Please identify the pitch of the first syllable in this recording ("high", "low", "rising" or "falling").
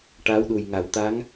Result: rising